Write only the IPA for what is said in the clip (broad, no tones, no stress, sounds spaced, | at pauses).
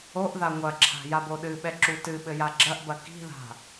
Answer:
o ʔ ð a ŋʷ ɐ ǁʰ a̤ j a b o ɗ ɨ ɓ ɛ ǁ u t ɨ ɓ ɘ j a ɡ͡ǁ ɐ ʔ b ɐ k i̤ ð a̤